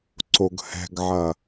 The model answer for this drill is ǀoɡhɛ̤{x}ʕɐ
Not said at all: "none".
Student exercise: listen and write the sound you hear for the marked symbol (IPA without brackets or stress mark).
ɡ